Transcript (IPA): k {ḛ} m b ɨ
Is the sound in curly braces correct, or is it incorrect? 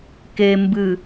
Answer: incorrect